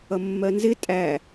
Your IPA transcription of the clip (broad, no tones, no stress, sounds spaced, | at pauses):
ʌ mː ɜ n z ɪ tʼ æ